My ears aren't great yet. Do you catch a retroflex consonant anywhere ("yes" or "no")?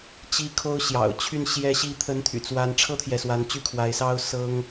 yes